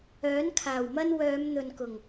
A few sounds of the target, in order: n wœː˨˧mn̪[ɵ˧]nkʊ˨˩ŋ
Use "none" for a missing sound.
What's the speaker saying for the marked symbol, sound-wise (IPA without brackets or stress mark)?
ɵ˨